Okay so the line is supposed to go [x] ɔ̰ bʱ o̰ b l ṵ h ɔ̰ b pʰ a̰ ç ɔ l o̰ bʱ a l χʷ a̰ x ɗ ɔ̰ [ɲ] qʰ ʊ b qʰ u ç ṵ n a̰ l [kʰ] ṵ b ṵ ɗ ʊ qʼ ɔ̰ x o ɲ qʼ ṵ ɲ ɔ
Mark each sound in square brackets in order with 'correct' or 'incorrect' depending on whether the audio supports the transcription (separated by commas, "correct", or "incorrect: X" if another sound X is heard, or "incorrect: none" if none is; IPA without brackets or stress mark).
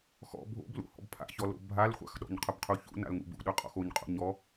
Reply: correct, correct, incorrect: ŋ